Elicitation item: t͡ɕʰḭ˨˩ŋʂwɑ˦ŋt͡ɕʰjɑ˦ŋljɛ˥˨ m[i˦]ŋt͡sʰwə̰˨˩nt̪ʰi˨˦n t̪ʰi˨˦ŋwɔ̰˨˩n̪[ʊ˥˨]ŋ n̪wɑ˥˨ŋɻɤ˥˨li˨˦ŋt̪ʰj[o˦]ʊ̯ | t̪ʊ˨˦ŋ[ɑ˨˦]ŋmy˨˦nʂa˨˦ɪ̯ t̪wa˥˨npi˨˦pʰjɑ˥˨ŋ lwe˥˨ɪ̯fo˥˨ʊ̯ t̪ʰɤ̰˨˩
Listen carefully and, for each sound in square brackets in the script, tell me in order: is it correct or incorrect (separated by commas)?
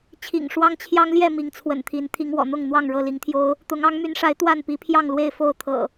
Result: incorrect, correct, correct, correct